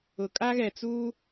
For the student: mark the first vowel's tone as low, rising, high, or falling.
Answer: low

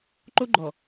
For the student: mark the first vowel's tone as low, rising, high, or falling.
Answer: high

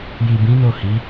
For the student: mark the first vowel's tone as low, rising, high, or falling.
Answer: low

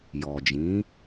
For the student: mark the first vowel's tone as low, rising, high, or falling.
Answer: low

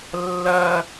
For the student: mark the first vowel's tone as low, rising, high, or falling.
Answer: high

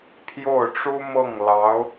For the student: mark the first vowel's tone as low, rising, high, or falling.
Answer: falling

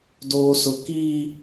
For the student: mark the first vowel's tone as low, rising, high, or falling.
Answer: high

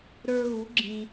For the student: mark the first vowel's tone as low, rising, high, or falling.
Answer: high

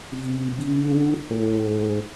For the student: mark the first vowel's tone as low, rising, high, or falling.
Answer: low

